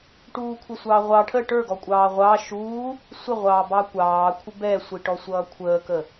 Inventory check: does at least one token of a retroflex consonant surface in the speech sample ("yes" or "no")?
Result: yes